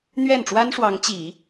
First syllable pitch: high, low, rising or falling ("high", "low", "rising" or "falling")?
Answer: falling